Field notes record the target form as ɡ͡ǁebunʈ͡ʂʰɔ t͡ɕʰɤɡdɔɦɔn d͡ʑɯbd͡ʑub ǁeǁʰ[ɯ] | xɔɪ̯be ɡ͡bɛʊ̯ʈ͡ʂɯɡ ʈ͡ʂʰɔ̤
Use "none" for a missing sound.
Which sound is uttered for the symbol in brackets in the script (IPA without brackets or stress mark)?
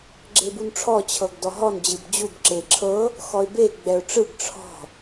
ɤ